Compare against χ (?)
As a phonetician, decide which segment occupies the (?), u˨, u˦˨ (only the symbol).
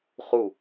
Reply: u˦˨